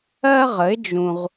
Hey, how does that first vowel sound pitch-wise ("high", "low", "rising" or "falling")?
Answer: high